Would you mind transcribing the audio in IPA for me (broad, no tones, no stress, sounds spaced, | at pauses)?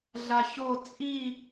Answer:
ɮ a ç o t͡sʼ i